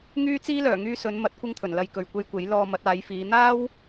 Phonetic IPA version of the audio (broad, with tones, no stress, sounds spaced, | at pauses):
ŋ yː˥ t͡s iː˥ l œː˨˩ ŋ yː˧ s ɵ˨˧ n m ɐ˨˥ t̚ kʷ ɪ˥ ŋ t̪ʰ ɵ˨˩ n l ɐ˧ j k ɵ˨ ɥ kʷ e˧ j kʷ e˨˥ j l ɔː˧ m ɐ˨˥ t̚ aː˨˧ j f iː˨˧ n̪ aː˥ w